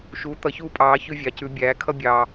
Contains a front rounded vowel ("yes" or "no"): no